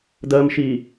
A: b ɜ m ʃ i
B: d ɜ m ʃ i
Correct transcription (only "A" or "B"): B